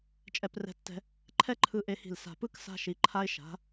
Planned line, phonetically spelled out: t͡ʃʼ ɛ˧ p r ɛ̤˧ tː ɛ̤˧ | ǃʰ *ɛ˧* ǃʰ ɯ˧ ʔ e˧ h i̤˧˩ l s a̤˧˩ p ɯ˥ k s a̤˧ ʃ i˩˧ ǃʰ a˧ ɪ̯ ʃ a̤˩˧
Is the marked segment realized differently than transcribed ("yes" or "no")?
yes